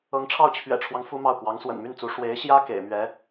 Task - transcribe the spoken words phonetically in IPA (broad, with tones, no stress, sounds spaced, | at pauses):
ɤ˧˥ ŋ ʈ͡ʂʰ ɑ˥˩ ʊ̯ t͡ɕʰ ɥ ɛ̰˨˩ ʈ͡ʂʰ w ɑ˦ ŋ f u˥ m ɑ˥˩ ʊ̯ k w ɑ˧˥ ŋ s w ə̰˨˩ n m y˥˩ n t͡s u˧˥ ʂ w e˧˥ ɪ̯ ɕ j ä˥ k ḛ˨˩ ɪ̯ m ɥ ɛ˧˥